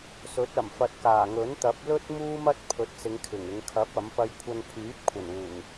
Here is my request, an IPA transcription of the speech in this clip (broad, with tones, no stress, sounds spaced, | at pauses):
s ɵ˨˥ t̚ ɐ˨˩ m f ɐ˨ t̚ k aː˨˩ ŋ ɵ˨˥ n t̪ ɐ˨˥ p̚ l ɵ˥ t̚ m uː˥ m ɐ˥ t̚ pʰ ɵ˨˥ t̚ s ɪ˨˧ ŋ kʰ ɪ˨˩ ŋ ɪ˨˧ ŋ kʰ ɐ˨˥ p̚ ɐ˨˥ m p ɐ˧ j kʷʰ ɐ˧ n pʰ yː˨˥ p̚ kʷʰ ɐ˨˩ n uː˨˩ ŋ